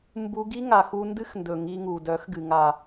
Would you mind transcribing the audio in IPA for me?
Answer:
mbu˧ɡi˦ ŋa˨xu˧ ndɨ˦xndɵ˨ ŋi˧ŋu˨ dœ˨˦xɡɨ˨ŋa˨

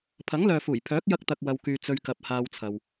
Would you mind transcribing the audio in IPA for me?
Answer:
pʰɐ˨˥ŋlœː˨fuː˨˩j pʰœː˨˥k̚jɐ˧k̚t̪ɐ˨k̚ wɐ˧wkyː˧ t͡sɵ˧ɥkɐ˨˥p̚haː˧wt͡sʰɐ˨w

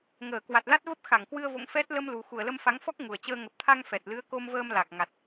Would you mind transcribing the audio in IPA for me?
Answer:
ŋəː˧˩kwa˨˩t̚la˦˥t̚və˦˥p̚ xa˧˩ŋkwɨ˧ə̯vo̰˧˨ŋ fɛ˦˥t̚ lə˧mlu˨˩ xu˨˩ə̯lə˧mfa˨˦ŋfɔ˦˥k̚ ŋu˨˩ə̯t͡ɕəː˧ ŋə˨˩p̚t̪ʰa˧ŋ fɛ˨˩t̚lɨ˨˦ə̯ ko˧mvəː˧m la˨˩k̚ ŋa˨˩t̚

